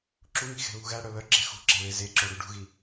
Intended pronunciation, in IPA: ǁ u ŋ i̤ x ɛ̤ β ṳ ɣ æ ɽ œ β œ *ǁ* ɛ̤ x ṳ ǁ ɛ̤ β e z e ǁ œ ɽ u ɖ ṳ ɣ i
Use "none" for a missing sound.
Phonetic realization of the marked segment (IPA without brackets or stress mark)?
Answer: ǁ